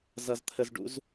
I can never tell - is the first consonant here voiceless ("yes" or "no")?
no